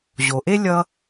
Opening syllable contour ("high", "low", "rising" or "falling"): low